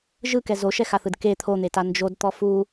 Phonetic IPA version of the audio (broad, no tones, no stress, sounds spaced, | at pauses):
ʒ ɯ k ɛ z o ʃ ɛ x a θ ɯ d k e t̪ʰ o n̪ e t a n d͡ʒ o d t̪ ɔ f u